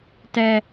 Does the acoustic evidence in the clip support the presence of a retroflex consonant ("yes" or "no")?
no